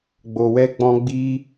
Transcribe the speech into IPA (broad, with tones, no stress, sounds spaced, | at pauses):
ɡ͡b o˧ w ɛ˦ ɡ͡b ɔ̃˦ ɡ͡b i˦